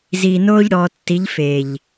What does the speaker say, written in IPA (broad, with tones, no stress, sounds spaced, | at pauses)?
z i˨ n oː˦ ʎ ɽ ɔ˨ tː i˨˦ ʎ f e˨ ʎ